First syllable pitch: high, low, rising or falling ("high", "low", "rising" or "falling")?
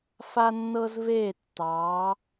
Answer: high